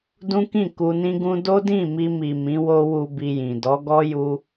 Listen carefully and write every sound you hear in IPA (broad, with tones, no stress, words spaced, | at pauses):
dũ˦kĩ˦˨ ku˧nĩ˦ɡũ˦ do˦dĩ˦˨mi˧mi˨ mĩ˨˦wo˦wu˧ bi˧jĩ˨ dɔ˨˦ɡɔ˦ ju˧